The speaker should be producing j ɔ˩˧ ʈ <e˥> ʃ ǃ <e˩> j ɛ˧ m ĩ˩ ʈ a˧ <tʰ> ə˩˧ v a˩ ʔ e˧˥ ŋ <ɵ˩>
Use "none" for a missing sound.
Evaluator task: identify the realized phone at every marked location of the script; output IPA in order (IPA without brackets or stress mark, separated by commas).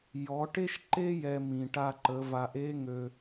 e˥, e˥, ǃ, ø˩